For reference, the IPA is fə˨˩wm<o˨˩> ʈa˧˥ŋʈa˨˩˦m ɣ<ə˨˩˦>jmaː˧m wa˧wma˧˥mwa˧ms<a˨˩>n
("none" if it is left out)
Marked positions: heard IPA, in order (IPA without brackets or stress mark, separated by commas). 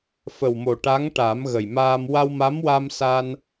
o˨˩, ə˨˩, a˧